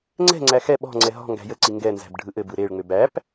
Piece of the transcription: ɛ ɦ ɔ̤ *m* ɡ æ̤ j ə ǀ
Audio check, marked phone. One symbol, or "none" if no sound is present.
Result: ŋ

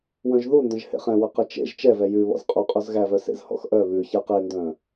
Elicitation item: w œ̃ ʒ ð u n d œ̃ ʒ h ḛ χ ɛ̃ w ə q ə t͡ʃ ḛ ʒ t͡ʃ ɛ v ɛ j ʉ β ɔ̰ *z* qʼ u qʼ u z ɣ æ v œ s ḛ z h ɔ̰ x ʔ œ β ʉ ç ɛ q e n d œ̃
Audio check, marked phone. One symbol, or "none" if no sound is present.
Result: z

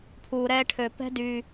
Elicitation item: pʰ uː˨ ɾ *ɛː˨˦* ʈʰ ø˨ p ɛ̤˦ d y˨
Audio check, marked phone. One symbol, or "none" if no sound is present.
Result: ɛː˦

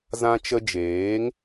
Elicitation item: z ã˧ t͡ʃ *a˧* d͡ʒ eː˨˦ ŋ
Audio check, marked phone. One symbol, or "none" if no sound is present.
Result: ə˧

